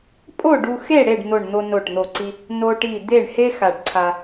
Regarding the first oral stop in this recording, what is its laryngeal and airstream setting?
ejective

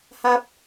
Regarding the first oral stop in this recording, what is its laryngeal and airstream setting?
plain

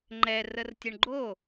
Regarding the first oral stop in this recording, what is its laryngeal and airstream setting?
click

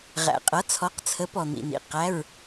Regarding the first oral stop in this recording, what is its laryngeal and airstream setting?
ejective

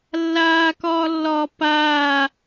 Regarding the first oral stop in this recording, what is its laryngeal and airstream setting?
plain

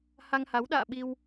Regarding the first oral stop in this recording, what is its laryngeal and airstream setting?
implosive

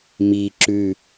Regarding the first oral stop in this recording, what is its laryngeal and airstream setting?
click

